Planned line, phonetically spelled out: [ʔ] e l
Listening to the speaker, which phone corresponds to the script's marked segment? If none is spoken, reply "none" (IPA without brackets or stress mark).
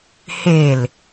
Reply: h